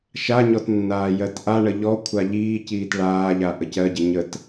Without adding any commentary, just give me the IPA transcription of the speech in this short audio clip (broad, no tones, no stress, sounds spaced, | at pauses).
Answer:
ʃ a ɲ ɔ t nː aː j ɜ t ʔ a ɳ ə ʎ ɔ kʷʰ a ʎ iː c iː t ɭ aː ʎ a ʔ ə c ɜ ɟ ə ɲ ə t